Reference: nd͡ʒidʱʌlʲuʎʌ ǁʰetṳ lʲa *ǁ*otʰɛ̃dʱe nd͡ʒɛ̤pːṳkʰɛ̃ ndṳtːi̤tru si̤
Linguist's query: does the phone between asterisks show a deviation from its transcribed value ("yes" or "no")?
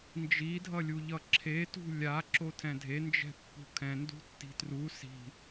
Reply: no